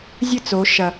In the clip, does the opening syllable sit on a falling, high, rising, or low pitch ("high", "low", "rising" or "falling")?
falling